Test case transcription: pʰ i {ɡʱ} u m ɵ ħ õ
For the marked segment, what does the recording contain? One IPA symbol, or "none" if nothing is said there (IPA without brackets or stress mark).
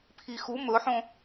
x